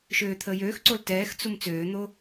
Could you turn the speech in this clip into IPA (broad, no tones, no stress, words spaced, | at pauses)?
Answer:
ʃøːt̪ʰəːjøːxǀol tɛːxt͡sum t͡søːn̪o